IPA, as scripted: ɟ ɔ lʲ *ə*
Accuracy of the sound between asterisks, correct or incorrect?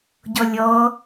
incorrect